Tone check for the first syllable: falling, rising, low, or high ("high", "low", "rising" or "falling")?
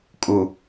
low